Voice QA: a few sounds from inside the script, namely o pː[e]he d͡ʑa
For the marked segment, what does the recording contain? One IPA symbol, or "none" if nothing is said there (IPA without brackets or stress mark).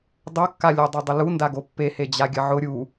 e